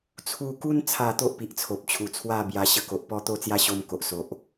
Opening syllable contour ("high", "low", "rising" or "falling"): falling